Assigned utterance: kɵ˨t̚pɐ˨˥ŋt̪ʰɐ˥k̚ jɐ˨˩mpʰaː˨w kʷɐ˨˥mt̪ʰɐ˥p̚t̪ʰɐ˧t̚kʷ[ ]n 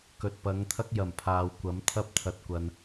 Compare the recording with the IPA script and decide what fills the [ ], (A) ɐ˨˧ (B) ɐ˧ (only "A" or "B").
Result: B